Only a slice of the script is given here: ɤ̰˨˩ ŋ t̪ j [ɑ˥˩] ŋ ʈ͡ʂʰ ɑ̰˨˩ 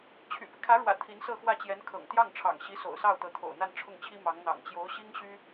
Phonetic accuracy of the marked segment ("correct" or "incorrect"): correct